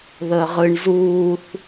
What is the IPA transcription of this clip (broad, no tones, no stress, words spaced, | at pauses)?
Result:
ðəːʁɯɳ zuːθ